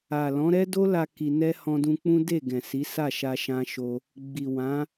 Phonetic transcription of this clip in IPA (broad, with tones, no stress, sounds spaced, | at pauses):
a˨ l ɔ̃˨˦ ɾ ɛ˦ d o˦ l a˧ k i˧ n ɛ˦ h ɔ̃˧ d ũ˧ k͡p ũ˦ d e˦˨ ɡ ɛ̃˨ s i˨˦ s a˦˨ ʃ a˧ ʃ ã˧ ʃ o˧ | ɡ͡b i˨ w ã˨˦